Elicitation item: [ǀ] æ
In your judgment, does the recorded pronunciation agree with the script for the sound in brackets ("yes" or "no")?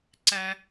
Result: yes